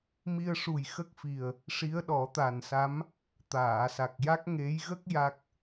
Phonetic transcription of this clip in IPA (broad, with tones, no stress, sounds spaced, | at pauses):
m i˧ ə̯ ʂ u˨˩ j x ə˦˥ k̚ f i˨˩ ə̯ | ʂ i˧˥ ə̯ ɗ ɔ˨˩˦ t̪ a˨˩ n s a˧˥ m | t̪ aː˨˩˨ s a˨˩ k̚ j a˦˥ k̚ ŋ e˧˥ j ɣ ə˦˥ k̚ j a˦˥ k̚